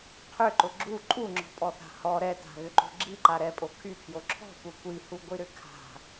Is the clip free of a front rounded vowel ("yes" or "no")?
no